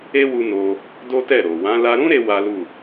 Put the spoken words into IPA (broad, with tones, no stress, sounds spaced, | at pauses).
e˦ w u˧ n o˧ | d o˦ t ɛ˦˨ ɾ o˨ w ã˨˦ l a˧ ɾ ũ˦ ɾ e˧ w a˦ l u˦˨